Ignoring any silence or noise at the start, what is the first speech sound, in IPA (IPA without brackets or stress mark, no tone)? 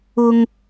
ʊ